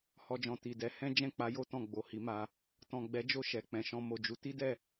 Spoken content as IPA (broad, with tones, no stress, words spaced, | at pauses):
hɔ˧d͡ʒɔ̃˨ ti˨dɛ˨˦ hɛ̃˦ d͡ʒɛ̃˦˨k͡pa˨˦ jo˦ tɔ̃˦˨ɡ͡bo˨hi˨˦ma˧ | tɔ̃˨ɡ͡bɛ˨˦d͡ʒo˦˨ ʃɛ˨k͡pɛ̃˨ʃɔ̃˧ mo˨d͡ʒu˨˦ ti˦dɛ˦˨